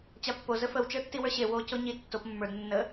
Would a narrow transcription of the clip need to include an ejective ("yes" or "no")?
no